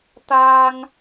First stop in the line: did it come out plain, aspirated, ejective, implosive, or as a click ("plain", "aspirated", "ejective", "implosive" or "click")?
plain